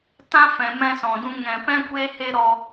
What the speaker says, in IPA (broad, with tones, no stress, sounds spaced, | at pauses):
t ã˦ f ɛ̃˨ m ɛ̃˧ s ɔ̃˨ d ũ˧ ŋ ɛ̃˨ p ɛ̃˦ kʷ eː˦ h e˦ ɾ ɔ˧